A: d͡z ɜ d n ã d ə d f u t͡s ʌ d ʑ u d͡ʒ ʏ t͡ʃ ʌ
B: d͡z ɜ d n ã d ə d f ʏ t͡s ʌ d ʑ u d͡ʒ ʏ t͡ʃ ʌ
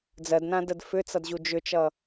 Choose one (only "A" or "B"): B